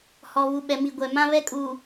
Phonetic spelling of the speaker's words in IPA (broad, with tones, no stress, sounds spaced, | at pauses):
h ɔ˨ β u˨ ɓ ɛ˨ m i˨ ɡʷ ɛ˨ m ã˦ β ɛ˦ kʼ uː˨